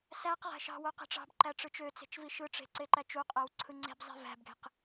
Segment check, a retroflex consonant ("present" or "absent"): present